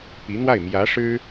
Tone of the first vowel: rising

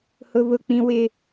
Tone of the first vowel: high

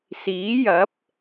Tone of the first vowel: rising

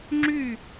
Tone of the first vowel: falling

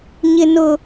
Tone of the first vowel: high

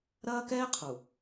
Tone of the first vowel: high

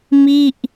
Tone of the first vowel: falling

